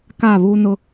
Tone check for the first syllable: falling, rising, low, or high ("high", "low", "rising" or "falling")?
falling